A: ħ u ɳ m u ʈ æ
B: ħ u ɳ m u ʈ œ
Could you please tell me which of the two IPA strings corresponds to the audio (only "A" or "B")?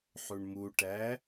A